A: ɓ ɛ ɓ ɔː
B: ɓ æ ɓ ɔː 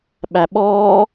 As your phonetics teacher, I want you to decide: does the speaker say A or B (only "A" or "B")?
B